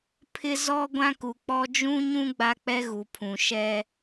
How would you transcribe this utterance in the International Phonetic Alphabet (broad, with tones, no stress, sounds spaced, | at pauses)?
pʰ ɪ˦ z ɔ˦ ɡʷ ã˦ k u˨ k͡p ɔ˦ d͡ʒ ũ˦ ɲ ũ˦ ɡ͡b a˦ k͡p ɛ˦ ɣ u˨ pʰ ũ˨ ʃ ɛ˦